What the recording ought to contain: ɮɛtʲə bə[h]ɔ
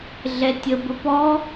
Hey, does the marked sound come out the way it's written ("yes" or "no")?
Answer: no